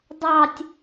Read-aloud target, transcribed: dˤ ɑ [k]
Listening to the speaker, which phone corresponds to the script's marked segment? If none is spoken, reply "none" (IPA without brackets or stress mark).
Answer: tʲ